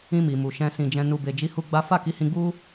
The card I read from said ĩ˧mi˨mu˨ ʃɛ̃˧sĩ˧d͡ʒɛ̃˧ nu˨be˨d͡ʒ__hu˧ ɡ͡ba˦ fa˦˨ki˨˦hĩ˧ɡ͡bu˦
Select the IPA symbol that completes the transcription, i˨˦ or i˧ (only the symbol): i˨˦